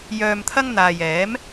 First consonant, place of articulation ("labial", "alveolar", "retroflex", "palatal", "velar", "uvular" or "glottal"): palatal